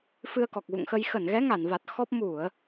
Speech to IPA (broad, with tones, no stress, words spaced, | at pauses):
fɨ˧ə̯kɔ˨˩k̚ɣṵ˧˨ŋxə˧j xə˧˩nɣɛ˨˦ŋa˧˩nva˨˩t̚ xɔ˦˥p̚ mu˧˩˨ə̯